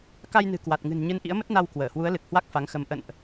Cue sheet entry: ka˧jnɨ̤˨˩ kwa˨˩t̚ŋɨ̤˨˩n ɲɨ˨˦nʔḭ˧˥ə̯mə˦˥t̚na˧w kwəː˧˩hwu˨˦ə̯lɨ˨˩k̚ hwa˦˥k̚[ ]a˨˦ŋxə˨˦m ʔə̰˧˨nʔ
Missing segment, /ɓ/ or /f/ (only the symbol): f